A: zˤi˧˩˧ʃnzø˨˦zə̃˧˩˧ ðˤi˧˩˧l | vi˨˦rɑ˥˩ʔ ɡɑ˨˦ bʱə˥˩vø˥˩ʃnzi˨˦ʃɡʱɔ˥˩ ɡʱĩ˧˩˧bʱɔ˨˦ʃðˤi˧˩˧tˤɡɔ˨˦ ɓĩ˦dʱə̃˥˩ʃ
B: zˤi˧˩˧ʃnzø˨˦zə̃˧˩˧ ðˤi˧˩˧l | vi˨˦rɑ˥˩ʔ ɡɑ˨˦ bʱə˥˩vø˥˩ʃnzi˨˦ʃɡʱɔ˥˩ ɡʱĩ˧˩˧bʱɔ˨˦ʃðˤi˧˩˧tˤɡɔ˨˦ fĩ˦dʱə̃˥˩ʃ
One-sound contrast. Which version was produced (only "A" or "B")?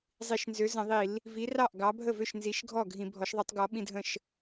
A